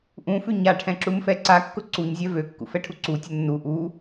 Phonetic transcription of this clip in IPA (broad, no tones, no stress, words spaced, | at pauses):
ʔũfʉ ɲaʈʰɛ̃ǁumfɛ ǀakːʊ ǀuɲzʲɛ vøkːṵfɛʈʰu ǀutʲʊ nːu ʔu